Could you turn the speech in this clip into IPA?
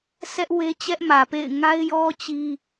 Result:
s ɛ˦ ʔ w e˦ t͡ɕ ɛ˦ ʔ m ä˨ p ḛ˦˨ ɪ̯ ŋ a˦ ɪ̯ j ɔ˦ t͡ɕ i˦

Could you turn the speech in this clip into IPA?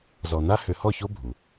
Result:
z ɔ˨ n a˦ h ʏ˨˦ h ɔ˦˨ ç o˦ bʱ u˨

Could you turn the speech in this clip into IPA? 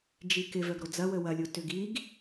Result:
d͡ʒ i k ɪ v œ ɡ ɾ o d͡z ɐ w ə w ɐ lʲ o t ʏ ɡ i ɡ

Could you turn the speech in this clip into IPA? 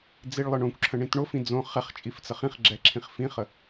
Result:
d͡z i ɭ lˠ ə ɳ õ kʷ ǁʰ ə̃ ɳ ĩ t ɳ o f ĩ d͡z õ χ ɛ χ t͡ʃʼ i f t͡s ə χ ĩ χ ɡ͡ǁ ɛ ǁʰ ĩ χ f ĩ χ ə

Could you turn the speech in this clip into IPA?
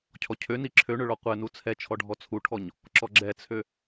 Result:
cʰ ɔ cʰ ø n i ǁʰ ø ɳ ø ɭ ɔ qʷ ɛ n u t͡sʰ ɛ t͡ʃʰ ɔ ɖʱ ɔ t͡sʰ u ʈʰ ɔ ɲ | ǁ ɔ ɡ͡ǁ ɛ t͡sʰ ø

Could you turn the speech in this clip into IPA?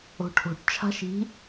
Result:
o̤ ʈʰ o̤ ʈ t͡ʃʰ a̤ ʃ i̤

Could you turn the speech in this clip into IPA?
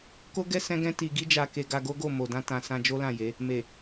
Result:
k o˦ ɡ ɛ˦ s ɛ̃˦ ɡ ɛ̃˦ t i˧ ɡ i˦ d͡ʒ a˧ k e˧ ɡ a˧ ɡ o˦ ɡ o˦˨ m o˨ d ã˧ t ã˧ s ã˧ d͡ʒ o˦ l ã˦˨ j e˨˦ | m e˨

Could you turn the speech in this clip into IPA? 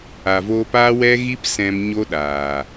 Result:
a˨ v oː˧ p aː˦ w ɛ˦ ɣ i˦ p s ɛ̃˧ m ɲ o˦ ɗ aː˨

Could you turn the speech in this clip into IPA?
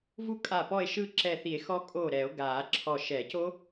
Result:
v u˥˧ kʼ a˧˩ p ɔ˥˧ e̯ ʃ ɯ˥˧ ǁ ɛ˧˩ θ i˨˩˦ e̯ x ɔ˦˥ kʼ o˧˩ ɾ ɛ˨˩˦ o̯ ɡ a˨˩˦ ǁʰ ɔ˧˩ ʃ ɛ˨˩˦ c o˦˥

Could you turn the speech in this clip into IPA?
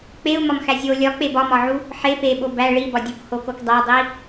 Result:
k͡p e u̯ m ɒ m x æ zʲ o lʲ ɒ k͡p e b ɒ m ɒ ʕ u | ħ e p e ɓ o b æ ɭ i b ɒ dʲ u k h o k o k dˤ æ dˤ i

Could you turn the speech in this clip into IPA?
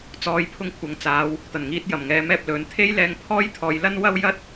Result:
t͡s ɔː˧ j pʰ ʊ˥ ŋ kʷʰ ɐ˨ ŋ t͡s aː˨˧ w | t̪ ɐ˨˩ n ŋ iː˨˥ t̚ j ɐ˨˩ m ŋ ɛː˨˥ m ɛː˧ p̚ l ɵ˨˥ n t̪ʰ e˥ j l ɛː˧ ŋ pʰ ɔː˥ j t̪ʰ ɔː˨˧ j l ɐ˥ n w ɐ˥ w j ɐ˥ t̚

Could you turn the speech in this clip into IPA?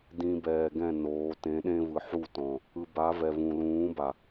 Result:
d ĩ˨ b ɛː˨ ɡ ɛ̃˦˨ n oː˨˦ t ẽ˨˦ ɗ ẽ˦ v ɯ˨ ħ u˦˨ t ɔ̃˨ | ɯ˨ b a˨˦ v ɛ˨ v ũ˨ l ũː˨˦ b a˨

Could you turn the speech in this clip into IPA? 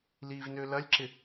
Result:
l i v n ø l ɐ lʲ ǁ ɪ

